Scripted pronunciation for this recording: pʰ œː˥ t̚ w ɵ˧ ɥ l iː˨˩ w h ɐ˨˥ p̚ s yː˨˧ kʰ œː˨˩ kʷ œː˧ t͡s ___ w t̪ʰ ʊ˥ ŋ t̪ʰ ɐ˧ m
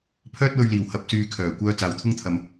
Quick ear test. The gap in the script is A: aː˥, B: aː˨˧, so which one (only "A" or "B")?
B